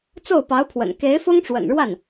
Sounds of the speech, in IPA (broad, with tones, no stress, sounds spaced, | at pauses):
t͡s o˥˩ ʊ̯ p ɑ˧˥ ʊ̯ pʰ w ə̰˨˩ n k e˧˥ ɪ̯ f ʊ˥ ŋ ʈ͡ʂ w ə̰˨˩ n ɻ w a˥˩ n